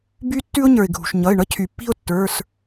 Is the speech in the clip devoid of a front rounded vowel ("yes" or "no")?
no